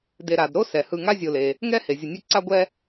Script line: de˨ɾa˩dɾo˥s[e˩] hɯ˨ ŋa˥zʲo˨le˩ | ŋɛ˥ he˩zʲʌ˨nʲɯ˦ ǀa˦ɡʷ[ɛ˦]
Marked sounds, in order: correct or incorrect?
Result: incorrect, correct

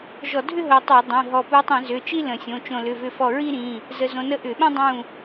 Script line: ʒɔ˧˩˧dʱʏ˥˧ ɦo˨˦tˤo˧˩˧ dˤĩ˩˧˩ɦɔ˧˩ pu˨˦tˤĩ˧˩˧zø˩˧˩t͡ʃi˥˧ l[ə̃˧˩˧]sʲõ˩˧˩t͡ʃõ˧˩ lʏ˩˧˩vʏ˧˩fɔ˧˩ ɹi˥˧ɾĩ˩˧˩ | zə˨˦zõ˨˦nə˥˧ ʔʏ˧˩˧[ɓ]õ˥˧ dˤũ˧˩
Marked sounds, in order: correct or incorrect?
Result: correct, correct

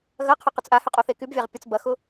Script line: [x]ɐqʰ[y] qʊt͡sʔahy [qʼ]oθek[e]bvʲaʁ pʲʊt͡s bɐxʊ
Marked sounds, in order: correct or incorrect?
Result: incorrect, correct, correct, incorrect

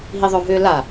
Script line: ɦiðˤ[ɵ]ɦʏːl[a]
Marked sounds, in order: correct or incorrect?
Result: incorrect, correct

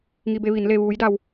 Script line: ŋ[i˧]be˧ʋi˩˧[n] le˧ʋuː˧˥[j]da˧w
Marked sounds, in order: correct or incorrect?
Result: correct, correct, correct

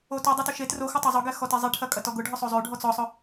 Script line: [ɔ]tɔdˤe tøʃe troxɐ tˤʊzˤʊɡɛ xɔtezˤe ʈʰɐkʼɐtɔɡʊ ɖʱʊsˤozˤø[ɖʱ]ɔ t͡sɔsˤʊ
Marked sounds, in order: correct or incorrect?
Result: incorrect, correct

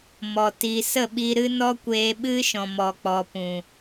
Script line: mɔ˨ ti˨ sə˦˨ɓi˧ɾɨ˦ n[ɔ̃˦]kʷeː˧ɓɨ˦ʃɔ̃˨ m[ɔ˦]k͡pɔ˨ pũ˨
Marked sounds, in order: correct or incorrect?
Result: incorrect, incorrect

